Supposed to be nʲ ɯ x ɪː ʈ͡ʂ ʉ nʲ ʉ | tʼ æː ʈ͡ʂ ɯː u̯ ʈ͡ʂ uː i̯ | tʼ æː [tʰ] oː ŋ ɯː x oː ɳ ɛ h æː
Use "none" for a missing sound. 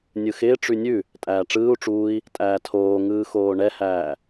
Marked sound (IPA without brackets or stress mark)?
tʰ